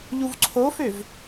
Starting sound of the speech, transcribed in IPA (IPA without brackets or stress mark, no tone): ʎ